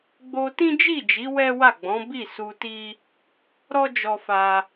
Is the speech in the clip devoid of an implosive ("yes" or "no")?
yes